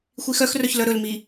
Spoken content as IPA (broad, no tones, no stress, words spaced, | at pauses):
xʷixœxrœç lœɾɵlmi